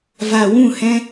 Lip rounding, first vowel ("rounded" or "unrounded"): unrounded